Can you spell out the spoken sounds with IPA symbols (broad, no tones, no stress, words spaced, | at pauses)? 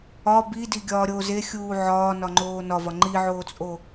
ɒ bidi ɡʲɒːɾʲo zexʲuː ʕɒː nɒŋ͡ǃoːnɒvɒ ŋ͡ǃiʕoːt͡sʼo